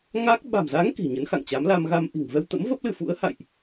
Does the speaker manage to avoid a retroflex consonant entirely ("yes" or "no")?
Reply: yes